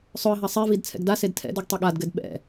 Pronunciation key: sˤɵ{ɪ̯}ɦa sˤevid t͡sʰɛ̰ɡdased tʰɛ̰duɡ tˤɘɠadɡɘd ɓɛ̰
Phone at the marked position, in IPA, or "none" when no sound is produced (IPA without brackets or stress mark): ə̯